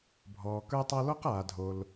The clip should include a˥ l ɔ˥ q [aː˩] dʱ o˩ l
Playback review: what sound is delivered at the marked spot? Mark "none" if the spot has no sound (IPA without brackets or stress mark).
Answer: aː˩